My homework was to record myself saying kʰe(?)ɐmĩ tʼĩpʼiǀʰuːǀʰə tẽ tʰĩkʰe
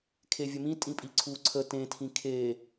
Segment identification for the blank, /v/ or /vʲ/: vʲ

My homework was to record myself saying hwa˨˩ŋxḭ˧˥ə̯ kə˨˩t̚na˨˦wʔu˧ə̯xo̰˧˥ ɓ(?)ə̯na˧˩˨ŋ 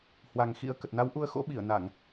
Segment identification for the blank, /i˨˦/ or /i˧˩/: i˧˩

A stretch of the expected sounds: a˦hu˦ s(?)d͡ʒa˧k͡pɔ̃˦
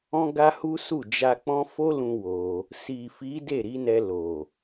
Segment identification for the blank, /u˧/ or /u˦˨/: u˦˨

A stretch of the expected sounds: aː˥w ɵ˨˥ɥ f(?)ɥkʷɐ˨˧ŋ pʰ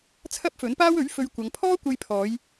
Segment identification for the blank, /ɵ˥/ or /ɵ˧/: ɵ˧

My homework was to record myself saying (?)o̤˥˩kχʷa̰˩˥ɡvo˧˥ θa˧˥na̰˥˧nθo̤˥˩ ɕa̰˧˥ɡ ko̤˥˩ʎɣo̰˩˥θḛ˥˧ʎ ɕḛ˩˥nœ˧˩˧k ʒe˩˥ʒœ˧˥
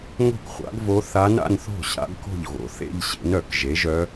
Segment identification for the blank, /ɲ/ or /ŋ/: ŋ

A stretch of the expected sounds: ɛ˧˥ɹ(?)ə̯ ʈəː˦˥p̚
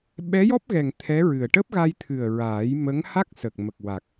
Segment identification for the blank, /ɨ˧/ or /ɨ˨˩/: ɨ˨˩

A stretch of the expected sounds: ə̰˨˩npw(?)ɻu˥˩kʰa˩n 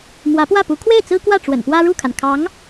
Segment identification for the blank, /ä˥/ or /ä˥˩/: ä˥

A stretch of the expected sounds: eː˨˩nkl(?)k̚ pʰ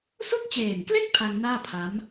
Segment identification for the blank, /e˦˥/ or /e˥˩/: e˥˩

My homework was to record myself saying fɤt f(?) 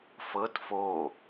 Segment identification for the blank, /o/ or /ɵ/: o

